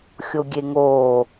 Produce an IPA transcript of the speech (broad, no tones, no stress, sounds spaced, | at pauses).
xʲ o ɡʲ e ŋ oː